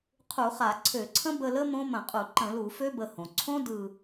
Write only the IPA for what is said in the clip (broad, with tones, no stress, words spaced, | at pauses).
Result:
qʰu˧˩˧χa˧˩˧ǀʰø˧˩˧ ǀʰə̃˦˥bə˦˨lə˦˥ mõ˦˥mə̃˧˩˧qʼu˧˩˧ ǃə̃˧˩˧lu˧˩˧fø˦˥ bə˦˨hõ˩ ǀʰõ˦˥ dɯ˦˨